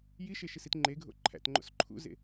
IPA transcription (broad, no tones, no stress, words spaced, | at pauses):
jiʃeʃisit ŋ͡ǃeɡʱo̰ ǃʰæ̰tŋ͡ǃo̰s ǃʰṵzḛ